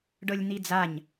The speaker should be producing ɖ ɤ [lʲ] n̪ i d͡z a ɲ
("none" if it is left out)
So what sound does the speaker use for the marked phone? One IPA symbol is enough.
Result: lʲ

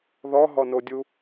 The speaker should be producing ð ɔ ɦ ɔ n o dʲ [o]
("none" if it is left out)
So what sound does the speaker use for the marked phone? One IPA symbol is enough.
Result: u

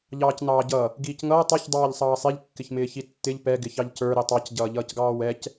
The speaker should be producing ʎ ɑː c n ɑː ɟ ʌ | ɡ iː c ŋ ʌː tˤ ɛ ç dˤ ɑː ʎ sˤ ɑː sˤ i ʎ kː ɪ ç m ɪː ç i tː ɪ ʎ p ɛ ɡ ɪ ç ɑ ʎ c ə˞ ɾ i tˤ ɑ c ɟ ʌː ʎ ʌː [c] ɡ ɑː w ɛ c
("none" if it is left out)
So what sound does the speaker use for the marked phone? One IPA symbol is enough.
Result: c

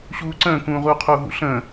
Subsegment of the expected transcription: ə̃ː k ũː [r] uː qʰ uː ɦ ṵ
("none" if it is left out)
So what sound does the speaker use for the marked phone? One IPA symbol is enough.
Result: ʁ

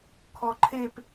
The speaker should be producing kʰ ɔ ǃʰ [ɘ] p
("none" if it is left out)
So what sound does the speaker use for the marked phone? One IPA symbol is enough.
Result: e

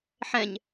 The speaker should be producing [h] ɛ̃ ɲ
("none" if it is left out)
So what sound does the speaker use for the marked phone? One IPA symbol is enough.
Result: ħ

